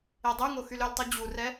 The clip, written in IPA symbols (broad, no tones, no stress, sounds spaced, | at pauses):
e dˤ ʉ ŋ o x y l ɵ l tˤ u d͡ʑ u r ɛ